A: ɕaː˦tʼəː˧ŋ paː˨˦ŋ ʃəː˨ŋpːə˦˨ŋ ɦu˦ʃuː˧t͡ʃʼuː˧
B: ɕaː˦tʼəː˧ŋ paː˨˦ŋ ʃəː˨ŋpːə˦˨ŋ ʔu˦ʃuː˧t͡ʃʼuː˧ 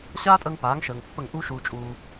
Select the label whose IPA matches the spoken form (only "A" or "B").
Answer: B